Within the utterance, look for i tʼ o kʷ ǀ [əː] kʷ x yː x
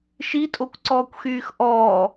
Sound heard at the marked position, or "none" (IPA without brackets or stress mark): ɔː